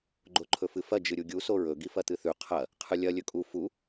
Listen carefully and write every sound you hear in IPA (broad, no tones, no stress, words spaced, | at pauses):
ɡ͡ǃoǃʰɵfɨfɐ d͡ʒɨɾʲuɡʲu soɹɵ ɡifɐt̪ɨθʉ qʰɐ | qʰɨlʲɐ lʲɵkʼu fu